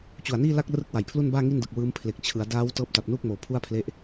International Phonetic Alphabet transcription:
t͡ɕ u˨˩ a̯ n iː˥˩ l a˥˩ k̚ r ɯ˦˥ k̚ w a˨˩ j pʰ l u˥˩ n b aː˥˩ ŋ i˥˩ n d ɯ˨˩ k̚ w ɯː˦˥ m pʰ l e˨˩ k̚ t͡ɕʰ ɯ˩˦ a̯ d aː˦˥ w t ɤː˦˥ p̚ t a˨˩ p̚ n uː˥˩ k̚ m oː˨˩ pʰ u˥˩ a̯ pʰ l e˦˥ ʔ

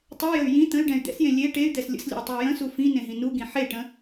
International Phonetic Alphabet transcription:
tˤ ɛ j ə y̯ j ĩ t̪ ə̃ y̯ ɖ ɛ̃ y̯ d̪ ɛ̰ s j ẽ lʲ e ʈ e y̯ d̪ ɛ s lʲ ə̰ s lʲ ə̰ i̯ tˤ ʏ u̯ j ə̃ s u f ĩ n ẽ ɦ ĩ n u ɡ ĩ ħ e ʈ ə̃

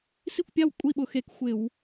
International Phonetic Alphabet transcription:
s i˥˨ kʷ pʲ a˥˨ w kʷʼ i˥˨ ɓ ʊ˧˩ x e˧˩˧ k xʷ ɪ˧˩˧ w

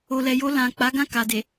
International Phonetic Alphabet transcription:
o˨ l ɛ˨ j o˧ l ã˨ k͡p a˨˦ ɡ ã˦˨ k a˨ d e˨

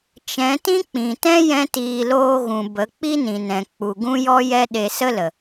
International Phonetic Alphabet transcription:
t͡ʃ ɛ̃˨˦ t ĩ˦ k͡p ĩ˨ t ɛ̃˦ j ɛ̃˦ t iː˧ l oː˧ ɣ ũ˨ b ə˨˦ k͡p i˦ n ĩ˨ n ɛ̃˨ k͡p u˨ ɡ ũ˦ j ɔ˦ j ɛ˦ ɗ e˧ s ə˦ l ə˨

